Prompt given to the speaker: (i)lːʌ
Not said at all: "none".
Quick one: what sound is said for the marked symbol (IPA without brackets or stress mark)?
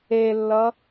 e